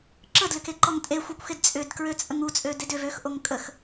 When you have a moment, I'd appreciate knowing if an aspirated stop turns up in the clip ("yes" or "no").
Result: no